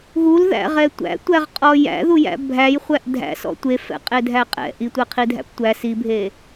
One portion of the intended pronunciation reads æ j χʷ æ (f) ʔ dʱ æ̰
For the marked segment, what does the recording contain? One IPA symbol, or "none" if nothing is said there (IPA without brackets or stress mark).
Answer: none